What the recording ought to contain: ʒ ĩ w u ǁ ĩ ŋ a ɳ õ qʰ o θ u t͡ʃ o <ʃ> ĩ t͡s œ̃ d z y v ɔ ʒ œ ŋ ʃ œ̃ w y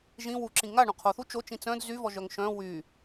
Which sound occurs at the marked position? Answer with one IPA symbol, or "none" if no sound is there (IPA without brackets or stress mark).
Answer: t͡ʃ